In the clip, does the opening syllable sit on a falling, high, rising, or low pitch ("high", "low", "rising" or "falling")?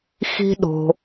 high